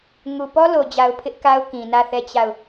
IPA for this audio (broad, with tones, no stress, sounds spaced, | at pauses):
ŋ u˨ p ɔ˦ l o˨ d͡ʑ a˨ ʊ̯ pʰ ɪ˦ ʔ k a˦ ʊ̯ k ĩ˨ n ä˦˨ θ ɛ˦˨ t͡ɕ a˦˨ ʊ̯